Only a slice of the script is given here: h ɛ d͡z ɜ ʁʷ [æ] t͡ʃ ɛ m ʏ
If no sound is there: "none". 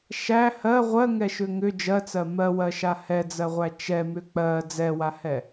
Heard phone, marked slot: æ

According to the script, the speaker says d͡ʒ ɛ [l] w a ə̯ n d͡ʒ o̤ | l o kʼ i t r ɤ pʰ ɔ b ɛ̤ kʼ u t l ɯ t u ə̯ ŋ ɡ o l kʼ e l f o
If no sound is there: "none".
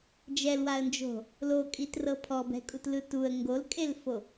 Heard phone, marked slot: l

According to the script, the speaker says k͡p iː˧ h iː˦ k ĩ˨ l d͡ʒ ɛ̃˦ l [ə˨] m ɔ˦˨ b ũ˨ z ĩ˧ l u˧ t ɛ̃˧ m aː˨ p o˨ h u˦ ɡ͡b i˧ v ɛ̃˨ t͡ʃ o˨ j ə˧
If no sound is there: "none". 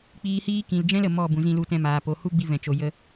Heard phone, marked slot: ə˨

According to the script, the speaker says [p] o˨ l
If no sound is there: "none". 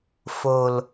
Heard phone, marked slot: f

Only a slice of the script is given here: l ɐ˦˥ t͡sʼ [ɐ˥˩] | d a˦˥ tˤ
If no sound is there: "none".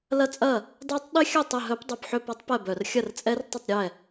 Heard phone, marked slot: ɐ˥˩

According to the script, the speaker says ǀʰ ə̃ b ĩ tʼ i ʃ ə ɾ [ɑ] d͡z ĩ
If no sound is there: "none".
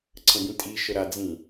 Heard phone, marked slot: a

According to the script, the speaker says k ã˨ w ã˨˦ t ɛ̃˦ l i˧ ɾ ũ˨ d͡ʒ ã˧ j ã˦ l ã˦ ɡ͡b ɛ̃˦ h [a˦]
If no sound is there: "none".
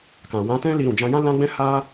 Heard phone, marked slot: a˦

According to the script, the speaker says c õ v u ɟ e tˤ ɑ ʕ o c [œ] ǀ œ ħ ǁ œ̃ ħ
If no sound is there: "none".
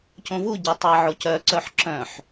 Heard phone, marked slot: œ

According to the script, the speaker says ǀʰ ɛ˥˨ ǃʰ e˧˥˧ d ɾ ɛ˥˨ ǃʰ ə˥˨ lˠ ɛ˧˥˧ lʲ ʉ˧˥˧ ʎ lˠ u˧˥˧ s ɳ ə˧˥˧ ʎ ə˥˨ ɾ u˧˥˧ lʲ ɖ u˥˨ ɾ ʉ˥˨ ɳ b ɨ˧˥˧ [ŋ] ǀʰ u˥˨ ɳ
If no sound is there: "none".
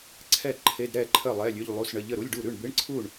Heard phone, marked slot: ɳ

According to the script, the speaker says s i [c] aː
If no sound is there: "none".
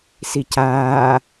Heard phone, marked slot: c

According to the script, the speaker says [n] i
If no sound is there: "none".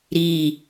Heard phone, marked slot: ɾ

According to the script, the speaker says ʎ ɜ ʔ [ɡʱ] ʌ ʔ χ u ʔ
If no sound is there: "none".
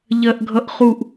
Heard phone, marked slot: ɡʱ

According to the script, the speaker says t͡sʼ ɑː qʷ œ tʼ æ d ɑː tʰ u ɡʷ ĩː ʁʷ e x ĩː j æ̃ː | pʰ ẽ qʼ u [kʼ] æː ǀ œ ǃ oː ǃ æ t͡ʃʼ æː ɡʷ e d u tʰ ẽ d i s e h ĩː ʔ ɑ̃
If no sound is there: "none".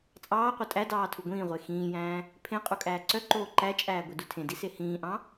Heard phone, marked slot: kʼ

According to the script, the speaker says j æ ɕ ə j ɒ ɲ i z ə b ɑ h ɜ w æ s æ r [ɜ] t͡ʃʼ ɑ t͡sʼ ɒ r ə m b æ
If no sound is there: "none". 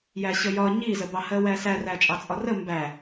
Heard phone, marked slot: æ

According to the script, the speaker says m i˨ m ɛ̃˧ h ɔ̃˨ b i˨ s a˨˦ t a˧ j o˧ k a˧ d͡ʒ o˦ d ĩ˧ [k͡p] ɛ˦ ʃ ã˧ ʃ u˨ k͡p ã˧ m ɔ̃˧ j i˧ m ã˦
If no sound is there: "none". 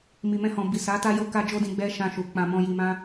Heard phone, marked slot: ɡ͡b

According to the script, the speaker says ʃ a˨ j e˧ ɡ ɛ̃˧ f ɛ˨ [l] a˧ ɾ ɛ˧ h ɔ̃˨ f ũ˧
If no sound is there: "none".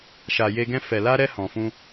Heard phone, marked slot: l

